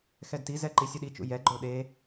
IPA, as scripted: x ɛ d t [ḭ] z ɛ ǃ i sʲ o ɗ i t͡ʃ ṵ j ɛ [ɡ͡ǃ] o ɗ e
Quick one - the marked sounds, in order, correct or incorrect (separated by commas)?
incorrect, correct